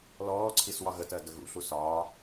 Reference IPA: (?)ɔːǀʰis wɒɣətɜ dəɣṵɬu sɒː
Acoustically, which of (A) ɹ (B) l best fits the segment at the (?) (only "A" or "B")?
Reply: B